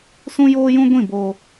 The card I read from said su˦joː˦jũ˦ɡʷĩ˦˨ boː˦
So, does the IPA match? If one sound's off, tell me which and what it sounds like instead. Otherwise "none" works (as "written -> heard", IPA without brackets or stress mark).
u˦ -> ũ˦